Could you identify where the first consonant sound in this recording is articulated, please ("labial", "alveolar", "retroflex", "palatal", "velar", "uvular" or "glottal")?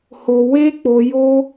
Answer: glottal